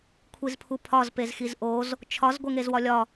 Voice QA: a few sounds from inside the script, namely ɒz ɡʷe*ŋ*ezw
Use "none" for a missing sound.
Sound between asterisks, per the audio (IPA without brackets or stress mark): ŋ